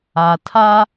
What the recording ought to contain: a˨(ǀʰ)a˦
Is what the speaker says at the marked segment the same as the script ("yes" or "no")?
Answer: no